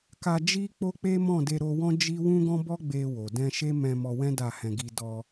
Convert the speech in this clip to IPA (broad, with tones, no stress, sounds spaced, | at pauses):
k a˧ d͡ʒ i˦ k͡p o˦ k͡p e˦ m ɔ̃˦˨ d e˧ ɾ o˧ w ɔ̃˦ d͡ʒ i˦ w ũ˦ ɡ ɔ̃˦ b ɔ˦ ɡ͡b e˧ w o˨ d ɛ̃˧ ʃ e˦ m ɛ̃˧ m ɔ˧ w ɛ̃˦ d a˦˨ h ɛ̃˧ ɡ i˧ d ɔ˧